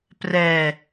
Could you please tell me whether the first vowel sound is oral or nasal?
oral